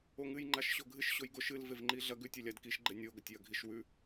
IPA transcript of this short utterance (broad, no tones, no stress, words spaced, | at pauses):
oŋɨjŋ͡ǃaʃ ɕoɡʱɨʃ ɕojɡoʃ ɨlvevŋ͡ǃi ɮɐɡ ʉtʲ elʲadkiʃɡ͡ǃe nʲoɡɐtʲjɐ ɡʱiʃwʉ